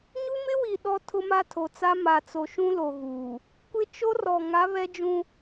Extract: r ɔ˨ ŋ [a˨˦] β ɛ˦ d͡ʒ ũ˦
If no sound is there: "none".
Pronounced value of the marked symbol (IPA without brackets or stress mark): a˨˦